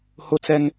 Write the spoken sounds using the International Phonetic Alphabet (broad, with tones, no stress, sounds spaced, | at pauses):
h ʊ˦ t͡s ɛ˦ ŋ